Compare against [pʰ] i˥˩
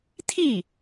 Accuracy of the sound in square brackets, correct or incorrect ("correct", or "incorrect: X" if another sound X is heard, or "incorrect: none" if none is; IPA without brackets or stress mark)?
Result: incorrect: t̪ʰ